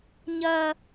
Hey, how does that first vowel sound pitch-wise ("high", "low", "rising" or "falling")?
high